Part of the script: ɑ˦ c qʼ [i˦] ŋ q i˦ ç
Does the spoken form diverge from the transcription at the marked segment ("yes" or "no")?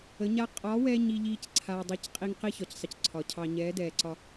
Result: no